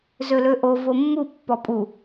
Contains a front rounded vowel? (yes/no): yes